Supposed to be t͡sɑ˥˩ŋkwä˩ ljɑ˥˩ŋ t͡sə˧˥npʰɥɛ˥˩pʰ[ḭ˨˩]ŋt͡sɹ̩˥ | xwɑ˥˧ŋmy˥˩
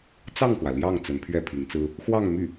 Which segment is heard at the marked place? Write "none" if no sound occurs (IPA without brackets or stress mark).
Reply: i˧˥